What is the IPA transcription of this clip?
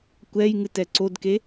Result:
kʷɛjŋɨtɛ ǀodke

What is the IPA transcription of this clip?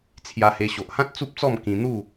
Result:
t͡sʰja˧he˧ ɕo˨ʔhã˦t̚ t͡su˦p̚t͡sɔ˥˧m kĩ˧n̪u˥˧

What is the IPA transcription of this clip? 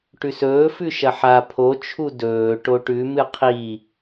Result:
ʈʉsɵː fʉʃɐħa pʰot͡ʃʰu dɵː ʈoʈʉ mɨqʰi

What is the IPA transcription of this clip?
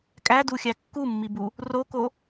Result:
kʼæduxʲæ kːumːibu | roko

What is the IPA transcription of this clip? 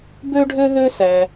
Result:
bø˥ɖʱø˥ðø˥ sæ˧

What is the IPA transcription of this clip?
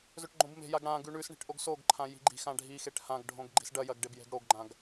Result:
zɵʈɡ͡ǃõbme̤jaɡ ɽã ɡʉɳʉsɳi̤ʈ ʔoɡsoɡǃʰã ji̤ɡ͡ǃi̤xã ɖʱixeʈ hãɡɖʱõɡ ɡ͡ǃi̤sɖɐjɐɡ ɖebje̤ɡɽoɡɡ͡ǃãɡ

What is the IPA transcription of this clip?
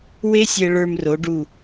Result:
we˥sʲɛ˧ ɭə˞˧m ro˩˧ɖu˧˩

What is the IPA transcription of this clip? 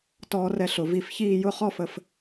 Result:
tɔː˧rɛ˧ɬʊ˩˧ vi˧˩fçiː˥˧ jʊ˥˧χɔ˥fə˧f

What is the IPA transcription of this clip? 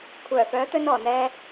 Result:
kʷʰœː˨˩fœː˨˥t̪ɵ˧nɔː˨˩ n̪ɛː˨

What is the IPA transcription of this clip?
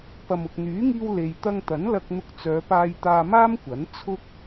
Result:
pɐ˨mʊ˨k̚n̪yː˨˥ŋiː˧w le˧j t̪ɐ˧ŋt̪ɐ˨˥n lɐ˧k̚n̪ʊ˧k̚t͡sœː˨˧paː˧j t̪aː˧maː˥mkʷɐ˨˥n t͡sʰʊ˥k̚

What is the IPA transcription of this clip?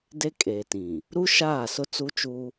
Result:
de˦kʼeː˨tĩ˨ | ɾu˦ʃaː˦˨sʊ˦ t͡su˦ t͡ʃuː˦

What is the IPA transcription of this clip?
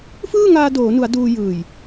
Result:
fɯː˥˩ŋaː˧ doː˩˦nu˩˦a̯ duː˧jɯː˨˩j

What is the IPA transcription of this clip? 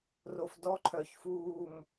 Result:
ro˨fdɔ˦ǃʰœ˨ç fuː˨m

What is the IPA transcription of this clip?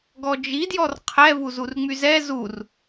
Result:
ɡɔd͡ʒi djɔrqʰɛ vuzurŋ͡myzɛ zur

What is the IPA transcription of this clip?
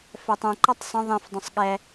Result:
fɛtˤũǃʌtˤ sˤə̃ ðˤĩfdˤũsˤ ɠɛ

